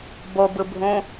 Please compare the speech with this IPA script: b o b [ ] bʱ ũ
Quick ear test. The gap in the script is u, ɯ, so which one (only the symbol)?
ɯ